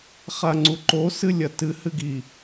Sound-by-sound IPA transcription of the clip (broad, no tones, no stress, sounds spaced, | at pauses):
χ a ŋ͡ǀ u ǃ o s ɨ lʲ ɐ t ɨ h ɨ ɡ i